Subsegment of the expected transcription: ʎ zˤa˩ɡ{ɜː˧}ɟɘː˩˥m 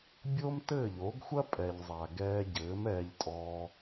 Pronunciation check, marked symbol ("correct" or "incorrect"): incorrect